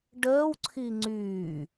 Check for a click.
present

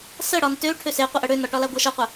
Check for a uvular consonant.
present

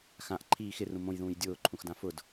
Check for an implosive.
absent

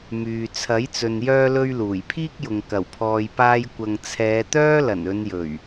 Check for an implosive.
absent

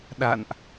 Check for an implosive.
present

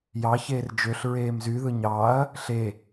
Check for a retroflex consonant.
absent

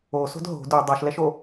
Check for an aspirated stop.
absent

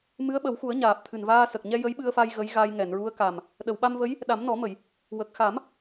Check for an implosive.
present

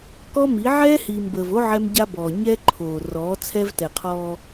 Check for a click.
present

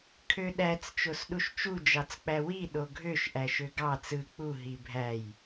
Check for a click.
absent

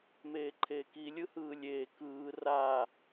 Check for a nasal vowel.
absent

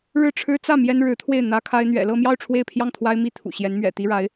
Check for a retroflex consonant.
present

